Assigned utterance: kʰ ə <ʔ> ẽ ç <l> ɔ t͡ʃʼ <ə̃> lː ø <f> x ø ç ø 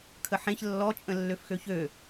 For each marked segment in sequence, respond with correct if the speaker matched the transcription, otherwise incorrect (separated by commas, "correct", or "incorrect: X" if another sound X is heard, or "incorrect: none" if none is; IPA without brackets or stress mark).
incorrect: ħ, incorrect: lː, correct, correct